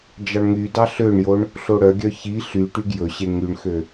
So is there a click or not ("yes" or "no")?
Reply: no